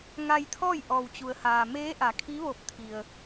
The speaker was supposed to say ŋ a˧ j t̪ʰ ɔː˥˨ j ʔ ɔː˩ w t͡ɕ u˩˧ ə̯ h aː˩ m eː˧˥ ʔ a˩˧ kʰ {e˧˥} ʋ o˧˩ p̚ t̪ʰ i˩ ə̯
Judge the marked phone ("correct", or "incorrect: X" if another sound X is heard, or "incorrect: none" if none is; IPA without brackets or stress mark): incorrect: i˧˥